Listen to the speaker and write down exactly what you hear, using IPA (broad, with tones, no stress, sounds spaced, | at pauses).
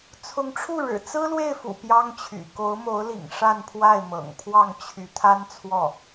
t͡sʰ ʊ˧˥ ŋ ʈ͡ʂʰ u˥˩ ɻ ɻ̩˨˩ t͡s ɹ̩˥ l w e˥˩ ɪ̯ f ṵ˨˩ p j ɑ˥ ŋ t͡ɕʰ y̰˨˩ k o˧˥ ʊ̯ m o˧˥ ʊ̯ l ḭ˨˩ ŋ ʂ a˥˧ n pʰ w a˥˩ ɪ̯ m ɤ̰˨˩ ŋ pʰ w ɑ˥˩ ŋ t͡ɕʰ y˧˥ t̪ʰ a˥ n t͡sʰ w ɔ˥˩